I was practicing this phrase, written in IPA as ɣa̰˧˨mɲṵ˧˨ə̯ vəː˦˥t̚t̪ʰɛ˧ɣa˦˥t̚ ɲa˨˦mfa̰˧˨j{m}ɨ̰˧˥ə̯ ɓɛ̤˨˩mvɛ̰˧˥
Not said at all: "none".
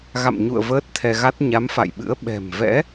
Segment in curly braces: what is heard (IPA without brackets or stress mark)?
ɓ